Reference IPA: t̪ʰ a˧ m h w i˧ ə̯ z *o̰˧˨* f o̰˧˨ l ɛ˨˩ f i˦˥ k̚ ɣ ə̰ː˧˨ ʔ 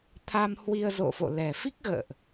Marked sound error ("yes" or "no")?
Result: no